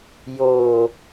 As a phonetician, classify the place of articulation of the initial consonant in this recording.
palatal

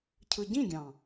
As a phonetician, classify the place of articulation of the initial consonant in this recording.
palatal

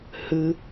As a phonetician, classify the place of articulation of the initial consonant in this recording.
glottal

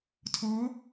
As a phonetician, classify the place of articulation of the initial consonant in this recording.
alveolar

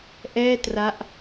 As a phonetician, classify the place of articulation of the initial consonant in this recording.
glottal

